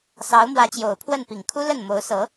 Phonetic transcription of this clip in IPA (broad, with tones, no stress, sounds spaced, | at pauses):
s ɑ˧˥ ʊ̯ m w ä˧˥ t͡ɕ j o˨˩ ʊ̯ pʰ w ə˥˩ n p i˨˩ ŋ kʰ u˥ l ə˥˩ n m o˧˥ ʊ̯ s ɤ˧˥